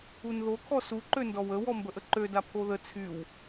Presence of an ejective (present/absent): absent